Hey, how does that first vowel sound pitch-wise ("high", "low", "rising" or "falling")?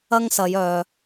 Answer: high